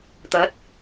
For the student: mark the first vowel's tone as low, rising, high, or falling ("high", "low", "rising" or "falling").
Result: rising